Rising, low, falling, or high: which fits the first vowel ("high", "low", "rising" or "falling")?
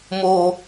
low